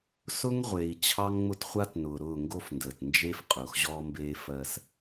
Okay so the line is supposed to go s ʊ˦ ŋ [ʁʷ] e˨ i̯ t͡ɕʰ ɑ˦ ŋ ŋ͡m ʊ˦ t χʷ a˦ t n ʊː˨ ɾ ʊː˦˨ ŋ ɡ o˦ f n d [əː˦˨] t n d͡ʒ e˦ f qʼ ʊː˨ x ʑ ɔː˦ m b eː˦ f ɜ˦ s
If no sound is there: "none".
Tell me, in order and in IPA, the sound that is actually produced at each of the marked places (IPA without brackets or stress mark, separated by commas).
ʁʷ, əː˨